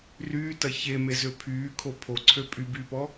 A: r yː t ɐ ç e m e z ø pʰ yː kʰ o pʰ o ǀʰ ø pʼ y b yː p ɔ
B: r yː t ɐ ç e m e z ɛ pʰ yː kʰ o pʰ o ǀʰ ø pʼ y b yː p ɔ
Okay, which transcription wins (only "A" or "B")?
A